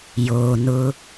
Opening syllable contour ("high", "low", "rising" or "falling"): low